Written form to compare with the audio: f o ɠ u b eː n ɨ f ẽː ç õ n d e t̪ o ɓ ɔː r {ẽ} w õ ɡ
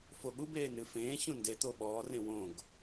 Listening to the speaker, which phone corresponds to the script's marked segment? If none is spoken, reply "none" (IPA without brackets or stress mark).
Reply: ẽ